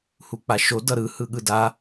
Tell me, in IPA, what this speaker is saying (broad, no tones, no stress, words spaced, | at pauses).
huk͡paʃo dʌɾɯ hɯɠɯda